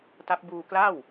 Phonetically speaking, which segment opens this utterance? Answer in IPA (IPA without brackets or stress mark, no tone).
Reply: t